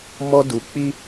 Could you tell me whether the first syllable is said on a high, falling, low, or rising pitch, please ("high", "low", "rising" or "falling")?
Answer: high